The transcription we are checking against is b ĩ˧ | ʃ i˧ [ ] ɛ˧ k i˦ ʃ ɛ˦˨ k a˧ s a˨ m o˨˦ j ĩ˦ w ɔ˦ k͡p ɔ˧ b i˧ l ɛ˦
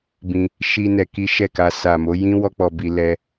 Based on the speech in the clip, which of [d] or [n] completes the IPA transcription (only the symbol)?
n